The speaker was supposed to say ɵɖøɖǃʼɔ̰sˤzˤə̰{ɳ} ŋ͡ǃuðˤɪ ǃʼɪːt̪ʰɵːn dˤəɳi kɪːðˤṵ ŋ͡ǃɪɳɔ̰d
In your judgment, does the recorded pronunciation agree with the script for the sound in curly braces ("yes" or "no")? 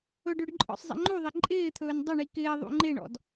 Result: no